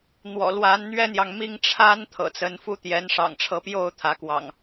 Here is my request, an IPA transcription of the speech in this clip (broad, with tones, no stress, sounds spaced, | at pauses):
n̪ w ɔ̰˨˩ l w a˨˦ n n̪ ɥ ɛ˦ n̪ j ɑ˨ ŋ m i˥˨ ŋ ʈ͡ʂʰ a˦ n t̪ʰ ɤ̰˨˩ t͡s ə˨˦ n f u˥˨ t̪ j ɛ˨˦ n ʂ ɑ̰˨˩ ŋ ʈ͡ʂʰ ɤ˨˦ p j o˥˨ ʊ̯ t̪ʰ ä˨˦ k w ɑ̰˨˩ ŋ